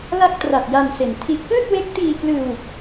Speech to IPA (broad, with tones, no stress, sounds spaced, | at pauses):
l a˥˩ k̚ t r a˨˩ t̚ j a˧ n s e˩˦ n tʰ i˦˥ ʔ k ɯː˥˩ t̚ w e˦˥ k̚ t iː˧ k l ɯː˧ w